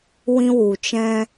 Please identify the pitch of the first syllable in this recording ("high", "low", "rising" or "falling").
high